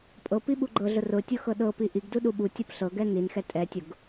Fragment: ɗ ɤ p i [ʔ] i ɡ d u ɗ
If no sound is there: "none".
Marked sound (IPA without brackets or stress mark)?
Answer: ʔ